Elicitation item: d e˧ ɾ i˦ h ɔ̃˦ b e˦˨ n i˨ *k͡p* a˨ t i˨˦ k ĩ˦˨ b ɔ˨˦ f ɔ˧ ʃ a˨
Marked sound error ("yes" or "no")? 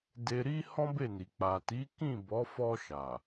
no